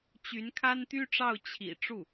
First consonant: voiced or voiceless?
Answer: voiceless